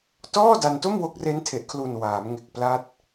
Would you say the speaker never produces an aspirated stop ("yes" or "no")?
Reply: no